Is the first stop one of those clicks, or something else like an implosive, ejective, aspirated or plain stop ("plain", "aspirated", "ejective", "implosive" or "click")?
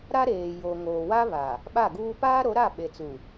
implosive